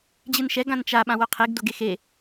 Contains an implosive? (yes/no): yes